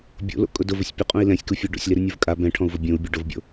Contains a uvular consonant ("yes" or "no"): yes